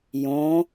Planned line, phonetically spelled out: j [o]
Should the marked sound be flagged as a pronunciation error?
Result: yes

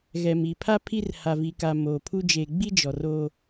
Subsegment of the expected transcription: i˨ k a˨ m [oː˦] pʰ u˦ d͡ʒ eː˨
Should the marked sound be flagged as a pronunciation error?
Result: yes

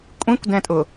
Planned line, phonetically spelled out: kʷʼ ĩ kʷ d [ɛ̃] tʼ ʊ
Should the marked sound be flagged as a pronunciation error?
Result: no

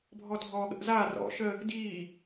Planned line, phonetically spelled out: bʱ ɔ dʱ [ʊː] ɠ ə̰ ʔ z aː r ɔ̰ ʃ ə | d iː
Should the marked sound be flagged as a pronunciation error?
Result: yes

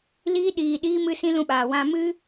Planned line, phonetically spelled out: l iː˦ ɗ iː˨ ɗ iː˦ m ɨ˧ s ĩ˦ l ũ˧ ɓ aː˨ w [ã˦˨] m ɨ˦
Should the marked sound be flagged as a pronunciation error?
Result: yes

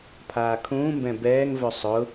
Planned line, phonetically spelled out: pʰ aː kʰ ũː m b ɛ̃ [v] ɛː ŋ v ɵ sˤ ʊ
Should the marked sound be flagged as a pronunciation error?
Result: yes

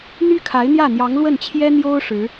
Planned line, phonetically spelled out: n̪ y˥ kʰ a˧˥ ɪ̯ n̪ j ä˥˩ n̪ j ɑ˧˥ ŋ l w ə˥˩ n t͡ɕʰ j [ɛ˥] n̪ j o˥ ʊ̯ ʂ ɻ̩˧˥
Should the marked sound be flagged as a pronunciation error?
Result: no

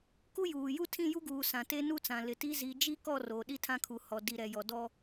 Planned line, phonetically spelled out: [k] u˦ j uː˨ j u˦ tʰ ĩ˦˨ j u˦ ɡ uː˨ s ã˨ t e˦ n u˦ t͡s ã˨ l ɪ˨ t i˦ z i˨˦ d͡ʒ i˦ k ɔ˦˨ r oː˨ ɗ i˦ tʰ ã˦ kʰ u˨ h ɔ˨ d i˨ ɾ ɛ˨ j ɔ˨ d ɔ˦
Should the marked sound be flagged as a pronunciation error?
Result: no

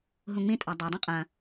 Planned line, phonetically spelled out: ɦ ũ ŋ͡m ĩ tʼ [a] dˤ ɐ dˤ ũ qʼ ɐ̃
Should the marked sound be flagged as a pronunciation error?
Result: no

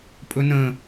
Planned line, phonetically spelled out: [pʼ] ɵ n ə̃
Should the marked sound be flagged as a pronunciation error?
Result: no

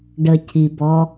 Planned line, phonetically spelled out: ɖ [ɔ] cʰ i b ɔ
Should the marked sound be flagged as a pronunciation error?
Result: yes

